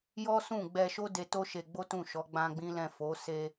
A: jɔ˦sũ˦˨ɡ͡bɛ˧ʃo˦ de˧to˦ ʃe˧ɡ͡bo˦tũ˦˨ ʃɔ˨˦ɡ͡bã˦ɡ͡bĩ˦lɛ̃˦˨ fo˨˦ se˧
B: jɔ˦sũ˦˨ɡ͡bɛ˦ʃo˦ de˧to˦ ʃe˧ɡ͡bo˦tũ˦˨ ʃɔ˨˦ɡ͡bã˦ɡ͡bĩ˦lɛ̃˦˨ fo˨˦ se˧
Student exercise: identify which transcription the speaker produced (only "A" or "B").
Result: A